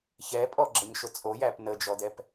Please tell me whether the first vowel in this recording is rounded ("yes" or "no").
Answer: no